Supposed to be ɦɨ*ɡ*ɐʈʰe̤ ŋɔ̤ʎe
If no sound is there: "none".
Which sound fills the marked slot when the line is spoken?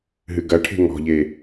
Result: ɡ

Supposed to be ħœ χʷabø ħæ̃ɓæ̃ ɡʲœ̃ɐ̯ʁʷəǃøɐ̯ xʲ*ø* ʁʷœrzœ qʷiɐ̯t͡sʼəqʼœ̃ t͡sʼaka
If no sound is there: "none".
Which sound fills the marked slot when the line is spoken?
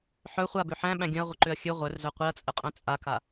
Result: ø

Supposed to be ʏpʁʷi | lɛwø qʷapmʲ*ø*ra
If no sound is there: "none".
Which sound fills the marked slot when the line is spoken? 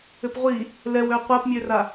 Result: ø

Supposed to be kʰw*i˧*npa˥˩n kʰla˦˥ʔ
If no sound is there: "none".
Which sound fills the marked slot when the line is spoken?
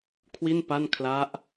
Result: i˥˩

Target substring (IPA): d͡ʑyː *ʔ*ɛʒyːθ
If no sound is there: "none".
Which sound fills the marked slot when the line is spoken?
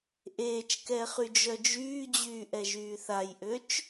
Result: ʔ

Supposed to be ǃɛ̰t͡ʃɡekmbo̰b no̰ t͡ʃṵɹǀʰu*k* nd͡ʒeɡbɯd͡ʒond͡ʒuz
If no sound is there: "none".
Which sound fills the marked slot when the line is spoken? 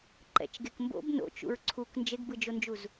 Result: k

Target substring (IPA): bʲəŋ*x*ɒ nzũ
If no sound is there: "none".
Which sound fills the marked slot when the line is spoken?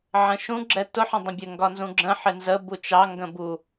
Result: ɡ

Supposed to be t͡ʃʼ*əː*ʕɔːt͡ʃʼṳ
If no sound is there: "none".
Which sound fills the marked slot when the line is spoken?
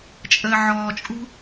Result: əː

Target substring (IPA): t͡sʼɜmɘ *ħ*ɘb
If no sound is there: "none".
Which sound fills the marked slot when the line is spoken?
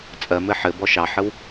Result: ħ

